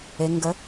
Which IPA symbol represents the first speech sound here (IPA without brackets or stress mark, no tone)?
e